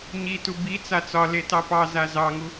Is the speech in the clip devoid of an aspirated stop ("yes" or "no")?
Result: yes